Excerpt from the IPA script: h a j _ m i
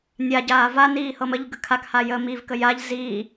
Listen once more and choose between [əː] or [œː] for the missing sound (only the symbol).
əː